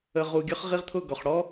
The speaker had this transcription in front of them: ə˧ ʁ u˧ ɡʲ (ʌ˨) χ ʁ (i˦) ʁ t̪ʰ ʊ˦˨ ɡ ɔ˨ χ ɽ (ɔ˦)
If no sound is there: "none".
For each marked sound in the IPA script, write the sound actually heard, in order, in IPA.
ʌ˦, i˦, ɔ˦

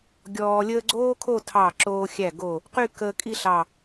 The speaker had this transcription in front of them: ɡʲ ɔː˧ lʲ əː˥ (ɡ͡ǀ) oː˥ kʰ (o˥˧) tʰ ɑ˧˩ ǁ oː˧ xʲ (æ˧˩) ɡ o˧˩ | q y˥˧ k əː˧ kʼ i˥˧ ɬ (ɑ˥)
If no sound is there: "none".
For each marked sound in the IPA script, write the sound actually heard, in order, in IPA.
ɡ͡ǀ, o˥˧, æ˧˩, ɑ˧˩

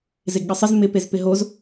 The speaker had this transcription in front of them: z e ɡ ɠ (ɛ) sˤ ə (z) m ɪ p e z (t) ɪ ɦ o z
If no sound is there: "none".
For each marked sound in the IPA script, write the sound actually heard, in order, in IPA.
ə, z, p

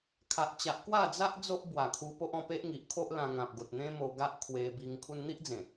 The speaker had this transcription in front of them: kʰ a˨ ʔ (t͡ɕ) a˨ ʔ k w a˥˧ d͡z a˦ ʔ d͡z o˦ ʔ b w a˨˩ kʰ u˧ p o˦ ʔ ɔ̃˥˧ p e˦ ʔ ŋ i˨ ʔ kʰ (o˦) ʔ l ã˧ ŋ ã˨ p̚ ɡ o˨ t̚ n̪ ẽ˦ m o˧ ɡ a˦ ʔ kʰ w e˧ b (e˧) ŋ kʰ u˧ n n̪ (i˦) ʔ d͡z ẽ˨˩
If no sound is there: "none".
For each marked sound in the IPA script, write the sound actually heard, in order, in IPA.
t͡ɕ, o˦, i˧, i˦

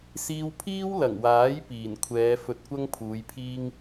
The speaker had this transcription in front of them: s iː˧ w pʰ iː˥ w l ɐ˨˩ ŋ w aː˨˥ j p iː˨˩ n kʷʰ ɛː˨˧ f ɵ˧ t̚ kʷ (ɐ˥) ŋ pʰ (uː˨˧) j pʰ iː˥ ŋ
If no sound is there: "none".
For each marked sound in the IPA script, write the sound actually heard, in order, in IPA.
ɐ˥, uː˨˧

